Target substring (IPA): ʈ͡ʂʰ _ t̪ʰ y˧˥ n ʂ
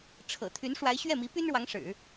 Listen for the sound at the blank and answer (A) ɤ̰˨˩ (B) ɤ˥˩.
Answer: A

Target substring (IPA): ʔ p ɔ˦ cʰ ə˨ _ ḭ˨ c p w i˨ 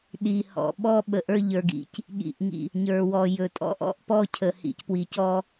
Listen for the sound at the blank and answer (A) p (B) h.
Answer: B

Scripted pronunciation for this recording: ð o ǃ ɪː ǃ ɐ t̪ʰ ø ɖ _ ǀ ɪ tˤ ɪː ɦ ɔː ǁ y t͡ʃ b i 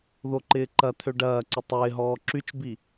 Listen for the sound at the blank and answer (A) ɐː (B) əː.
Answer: A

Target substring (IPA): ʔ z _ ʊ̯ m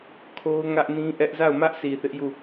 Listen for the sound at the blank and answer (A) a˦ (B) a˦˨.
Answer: B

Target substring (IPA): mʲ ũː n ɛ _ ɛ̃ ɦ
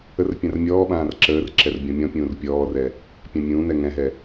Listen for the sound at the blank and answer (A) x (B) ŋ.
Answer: B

